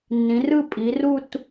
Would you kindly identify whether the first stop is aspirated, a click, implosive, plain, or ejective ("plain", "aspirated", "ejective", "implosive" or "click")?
ejective